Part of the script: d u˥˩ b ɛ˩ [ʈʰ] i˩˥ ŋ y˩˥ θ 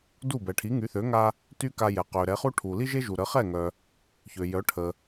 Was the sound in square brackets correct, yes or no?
yes